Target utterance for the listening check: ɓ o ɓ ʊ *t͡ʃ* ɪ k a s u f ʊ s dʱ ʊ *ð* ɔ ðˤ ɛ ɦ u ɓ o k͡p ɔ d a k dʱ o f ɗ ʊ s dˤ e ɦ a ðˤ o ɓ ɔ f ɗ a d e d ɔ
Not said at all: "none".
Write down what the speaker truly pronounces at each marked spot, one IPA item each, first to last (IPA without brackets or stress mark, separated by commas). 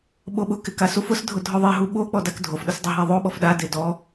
k, dʱ